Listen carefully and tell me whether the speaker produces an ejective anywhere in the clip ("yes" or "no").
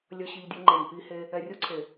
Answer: no